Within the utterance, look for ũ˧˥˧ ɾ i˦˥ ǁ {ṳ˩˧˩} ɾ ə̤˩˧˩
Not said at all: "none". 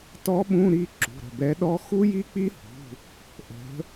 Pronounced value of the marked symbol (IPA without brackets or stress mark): ṳ˩˧˩